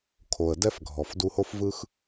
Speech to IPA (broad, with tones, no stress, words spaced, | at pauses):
kʰo˨ə̯dɛ˦f ɡʱɔ˨f du˧ho˦fvɯ˦x